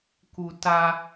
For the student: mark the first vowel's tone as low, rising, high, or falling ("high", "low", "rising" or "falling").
low